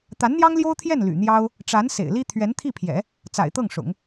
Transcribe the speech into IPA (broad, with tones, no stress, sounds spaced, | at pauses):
t̪ a˧˥ n n̪ j ɑ˥ ŋ l j o˥ ʊ̯ t̪ʰ j ɛ˥˩ n l y̰˨˩ n̪ j ɑ˥ ʊ̯ | ʈ͡ʂ a˧˥ n s ḛ˨˩ ɪ̯ l i˥ t̪ʰ ɥ ɛ˧˥ n t̪ʰ i˥˩ pʰ j ɛ̰˨˩˦ | t͡s a̰˨˩ ɪ̯ t̪ ɤ˥˩ ŋ ʂ ʊ̰˨˩˦ ŋ